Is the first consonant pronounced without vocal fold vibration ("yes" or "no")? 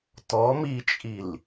yes